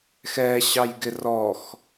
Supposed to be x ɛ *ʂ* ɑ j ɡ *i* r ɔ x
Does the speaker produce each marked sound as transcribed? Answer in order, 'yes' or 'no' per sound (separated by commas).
no, no